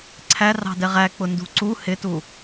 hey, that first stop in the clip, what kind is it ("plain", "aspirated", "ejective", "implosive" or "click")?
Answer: click